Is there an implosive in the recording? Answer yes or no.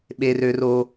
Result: yes